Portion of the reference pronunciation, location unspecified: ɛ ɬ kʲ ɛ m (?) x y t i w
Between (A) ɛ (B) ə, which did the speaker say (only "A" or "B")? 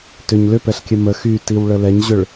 B